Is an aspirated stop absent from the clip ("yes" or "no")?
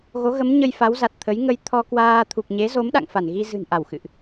no